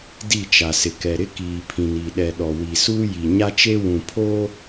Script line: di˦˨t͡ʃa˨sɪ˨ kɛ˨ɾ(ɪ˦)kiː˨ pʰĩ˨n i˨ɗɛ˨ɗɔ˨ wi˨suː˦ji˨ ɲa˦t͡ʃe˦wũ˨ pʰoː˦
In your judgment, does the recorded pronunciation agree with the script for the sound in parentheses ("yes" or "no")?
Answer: yes